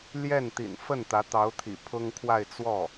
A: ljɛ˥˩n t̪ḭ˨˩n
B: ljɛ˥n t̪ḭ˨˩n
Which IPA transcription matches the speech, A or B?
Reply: A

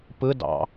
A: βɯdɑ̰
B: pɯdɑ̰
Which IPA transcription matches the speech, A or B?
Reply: B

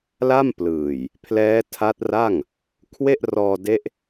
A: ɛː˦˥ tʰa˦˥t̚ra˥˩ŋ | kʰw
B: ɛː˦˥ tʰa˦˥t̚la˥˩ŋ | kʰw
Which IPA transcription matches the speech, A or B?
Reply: A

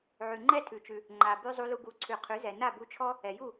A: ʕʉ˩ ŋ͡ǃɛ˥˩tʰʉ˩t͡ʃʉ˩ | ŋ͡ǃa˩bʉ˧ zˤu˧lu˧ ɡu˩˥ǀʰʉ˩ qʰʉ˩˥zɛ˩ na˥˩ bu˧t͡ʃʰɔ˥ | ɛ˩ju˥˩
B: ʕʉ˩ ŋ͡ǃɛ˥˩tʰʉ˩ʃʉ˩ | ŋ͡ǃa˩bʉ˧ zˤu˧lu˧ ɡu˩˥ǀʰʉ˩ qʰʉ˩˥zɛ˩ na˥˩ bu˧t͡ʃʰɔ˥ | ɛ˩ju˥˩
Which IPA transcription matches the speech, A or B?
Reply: A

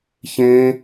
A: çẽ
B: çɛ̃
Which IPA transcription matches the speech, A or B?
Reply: A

